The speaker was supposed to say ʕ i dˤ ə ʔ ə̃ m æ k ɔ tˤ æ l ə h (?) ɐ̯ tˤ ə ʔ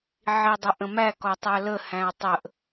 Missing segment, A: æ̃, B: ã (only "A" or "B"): A